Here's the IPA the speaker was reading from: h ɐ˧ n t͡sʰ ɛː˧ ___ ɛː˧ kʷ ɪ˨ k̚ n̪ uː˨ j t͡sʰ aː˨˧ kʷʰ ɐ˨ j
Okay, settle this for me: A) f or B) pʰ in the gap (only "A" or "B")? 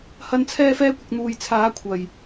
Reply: A